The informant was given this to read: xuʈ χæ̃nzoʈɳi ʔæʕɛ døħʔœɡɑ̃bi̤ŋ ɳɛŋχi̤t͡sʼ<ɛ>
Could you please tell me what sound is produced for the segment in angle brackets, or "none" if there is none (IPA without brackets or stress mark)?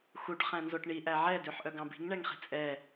ɛ